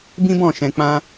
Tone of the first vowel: high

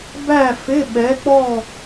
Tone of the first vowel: falling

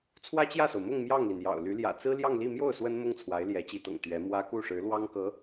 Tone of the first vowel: high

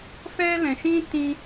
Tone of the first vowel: high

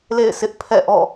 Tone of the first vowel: falling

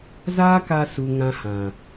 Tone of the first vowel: high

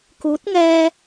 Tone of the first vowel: rising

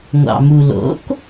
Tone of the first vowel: low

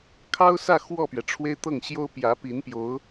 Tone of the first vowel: high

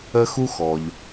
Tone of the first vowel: high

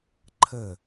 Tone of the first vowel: falling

